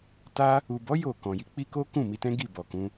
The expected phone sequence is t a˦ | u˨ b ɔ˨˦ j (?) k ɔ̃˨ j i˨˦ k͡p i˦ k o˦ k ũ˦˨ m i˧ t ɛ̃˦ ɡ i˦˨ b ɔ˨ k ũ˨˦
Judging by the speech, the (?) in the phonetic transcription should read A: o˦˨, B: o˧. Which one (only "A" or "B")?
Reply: A